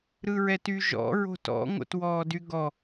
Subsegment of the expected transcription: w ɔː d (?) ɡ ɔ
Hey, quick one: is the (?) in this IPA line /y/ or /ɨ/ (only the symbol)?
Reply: y